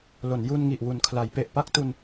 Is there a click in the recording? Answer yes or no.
no